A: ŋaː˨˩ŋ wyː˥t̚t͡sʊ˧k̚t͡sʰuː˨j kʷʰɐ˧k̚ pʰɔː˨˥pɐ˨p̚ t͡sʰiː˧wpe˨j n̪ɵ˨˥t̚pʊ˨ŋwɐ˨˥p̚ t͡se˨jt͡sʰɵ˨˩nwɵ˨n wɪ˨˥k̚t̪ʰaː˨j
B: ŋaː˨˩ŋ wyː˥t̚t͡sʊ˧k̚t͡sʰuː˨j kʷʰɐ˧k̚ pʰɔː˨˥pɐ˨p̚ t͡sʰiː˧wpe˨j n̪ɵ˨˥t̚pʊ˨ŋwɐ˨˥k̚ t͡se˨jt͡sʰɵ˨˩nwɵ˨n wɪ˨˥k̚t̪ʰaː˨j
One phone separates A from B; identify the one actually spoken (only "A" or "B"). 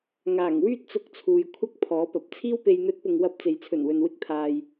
A